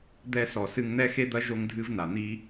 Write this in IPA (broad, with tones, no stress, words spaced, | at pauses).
d̪ɛ˧sɔ˨ sɨ˧ŋn̪ɛ˦xe˦d̪ɐ˦ ʒo˧ŋdʱɨ˧vna˨ n̪i˦